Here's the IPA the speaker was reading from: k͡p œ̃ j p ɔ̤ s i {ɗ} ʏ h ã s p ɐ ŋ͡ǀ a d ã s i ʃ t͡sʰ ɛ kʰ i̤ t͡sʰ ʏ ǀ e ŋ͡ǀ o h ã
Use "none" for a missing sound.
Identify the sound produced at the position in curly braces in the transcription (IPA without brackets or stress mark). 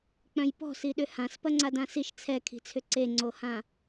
ɗ